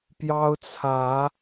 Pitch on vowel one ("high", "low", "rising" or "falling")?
high